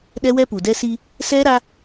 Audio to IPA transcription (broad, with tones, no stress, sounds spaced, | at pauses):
ɗ ɛ˦ w ɛ˦ p u˨ d ɛ˦ s i˦ | s ɛ˦ ɾ a˦